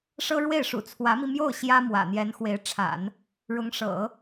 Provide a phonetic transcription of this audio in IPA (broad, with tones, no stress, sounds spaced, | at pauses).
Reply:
ʂ ɤ˥ ɻ w e˥˩ ɪ̯ ʂ ṵ˨˩ t͡sʰ w ä˧˥ m i˧ m j o˥˩ ʊ̯ ɕ j ä˥ m w ä̰˨˩ n̪ j ɛ˧˥ n x w e˧˥ ɪ̯ ʈ͡ʂʰ a̰˨˩˦ n | ɻ ʊ˧˥ ŋ ʂ ɤ̰˨˩˦